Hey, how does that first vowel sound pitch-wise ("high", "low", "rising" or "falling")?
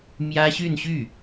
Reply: high